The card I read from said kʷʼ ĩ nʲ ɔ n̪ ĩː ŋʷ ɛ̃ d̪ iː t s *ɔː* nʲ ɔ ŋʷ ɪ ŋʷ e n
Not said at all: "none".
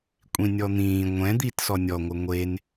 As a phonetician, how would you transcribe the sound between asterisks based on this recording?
ɔ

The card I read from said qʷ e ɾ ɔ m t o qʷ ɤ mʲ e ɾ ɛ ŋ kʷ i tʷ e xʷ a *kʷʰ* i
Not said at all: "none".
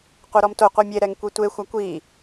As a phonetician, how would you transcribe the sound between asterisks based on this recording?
kʷ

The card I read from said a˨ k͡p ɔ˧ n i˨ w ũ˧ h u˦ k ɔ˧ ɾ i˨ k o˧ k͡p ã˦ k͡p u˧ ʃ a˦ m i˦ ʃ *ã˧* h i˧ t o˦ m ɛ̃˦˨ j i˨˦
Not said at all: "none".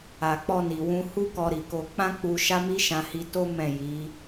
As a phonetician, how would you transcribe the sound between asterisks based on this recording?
ã˧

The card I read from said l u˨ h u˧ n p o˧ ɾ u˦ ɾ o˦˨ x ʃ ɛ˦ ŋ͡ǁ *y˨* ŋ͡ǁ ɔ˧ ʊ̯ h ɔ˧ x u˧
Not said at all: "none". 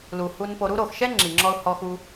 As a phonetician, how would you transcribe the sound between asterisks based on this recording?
i˨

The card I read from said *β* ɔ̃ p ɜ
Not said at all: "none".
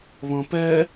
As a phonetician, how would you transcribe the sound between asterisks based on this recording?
β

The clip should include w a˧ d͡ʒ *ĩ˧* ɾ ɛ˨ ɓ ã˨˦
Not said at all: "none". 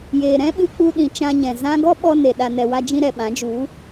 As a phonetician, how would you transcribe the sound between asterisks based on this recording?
ĩ˧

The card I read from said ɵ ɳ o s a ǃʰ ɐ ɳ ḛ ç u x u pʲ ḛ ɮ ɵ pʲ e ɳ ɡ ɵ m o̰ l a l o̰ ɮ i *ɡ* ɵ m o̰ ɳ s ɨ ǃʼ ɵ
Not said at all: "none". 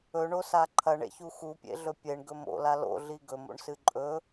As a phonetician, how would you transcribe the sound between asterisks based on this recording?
ɡ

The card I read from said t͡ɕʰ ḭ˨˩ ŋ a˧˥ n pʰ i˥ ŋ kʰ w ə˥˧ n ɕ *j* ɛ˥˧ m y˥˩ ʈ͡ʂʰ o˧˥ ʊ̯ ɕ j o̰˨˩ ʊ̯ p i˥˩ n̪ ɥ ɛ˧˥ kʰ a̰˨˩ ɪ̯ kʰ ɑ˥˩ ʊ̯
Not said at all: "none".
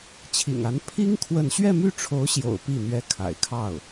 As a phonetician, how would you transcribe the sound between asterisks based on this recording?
ɥ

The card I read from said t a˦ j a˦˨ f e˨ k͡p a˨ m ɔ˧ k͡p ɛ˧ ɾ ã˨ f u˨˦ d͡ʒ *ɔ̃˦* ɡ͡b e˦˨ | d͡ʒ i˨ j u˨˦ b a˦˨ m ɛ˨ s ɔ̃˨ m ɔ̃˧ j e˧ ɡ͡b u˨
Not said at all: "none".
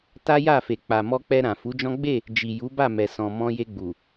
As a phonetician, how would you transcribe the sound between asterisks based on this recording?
ɔ̃˦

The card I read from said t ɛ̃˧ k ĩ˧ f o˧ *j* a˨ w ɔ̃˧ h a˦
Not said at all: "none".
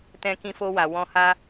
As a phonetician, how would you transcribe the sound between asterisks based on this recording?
w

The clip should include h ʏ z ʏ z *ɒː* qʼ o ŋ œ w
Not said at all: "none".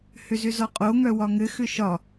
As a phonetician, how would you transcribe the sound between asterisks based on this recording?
ɒ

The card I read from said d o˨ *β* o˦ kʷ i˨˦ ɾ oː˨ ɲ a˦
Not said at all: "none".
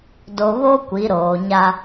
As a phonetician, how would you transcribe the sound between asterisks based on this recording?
β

